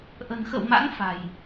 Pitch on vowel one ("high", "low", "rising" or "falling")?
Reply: low